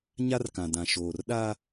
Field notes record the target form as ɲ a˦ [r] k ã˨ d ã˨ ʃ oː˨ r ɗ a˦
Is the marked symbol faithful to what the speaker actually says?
yes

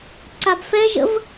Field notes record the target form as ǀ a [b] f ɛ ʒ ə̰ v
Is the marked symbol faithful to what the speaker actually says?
yes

